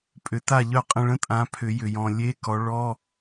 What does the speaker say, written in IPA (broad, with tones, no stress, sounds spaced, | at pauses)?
pʼ ʏ˨˩˦ t a˦˨ ʎ œ˦˨ qʼ ə̃˦˨ ɭ ə̃˥ tʼ ã˨˦ pʰ ʏ˨˩˦ j ʏ˨ j ɔ̃˨ lʲ e˧˥˧ k ɔ˨˦ ɭ ɔ˧˥˧